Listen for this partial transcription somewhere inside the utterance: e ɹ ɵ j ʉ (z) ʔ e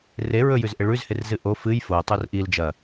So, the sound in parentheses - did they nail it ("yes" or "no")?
yes